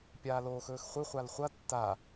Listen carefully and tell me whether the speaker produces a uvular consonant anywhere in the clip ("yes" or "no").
yes